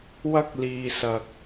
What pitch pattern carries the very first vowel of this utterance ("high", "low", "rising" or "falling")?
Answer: high